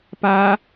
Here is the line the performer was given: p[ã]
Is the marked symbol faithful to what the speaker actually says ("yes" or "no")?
no